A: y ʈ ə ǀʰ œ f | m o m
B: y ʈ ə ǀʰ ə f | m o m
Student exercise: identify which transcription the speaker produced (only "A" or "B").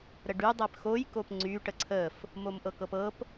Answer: B